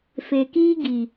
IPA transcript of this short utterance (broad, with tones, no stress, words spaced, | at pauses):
fe˨kiː˦ɡi˨